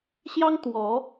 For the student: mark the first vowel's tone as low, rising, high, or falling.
high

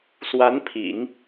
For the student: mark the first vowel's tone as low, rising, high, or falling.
rising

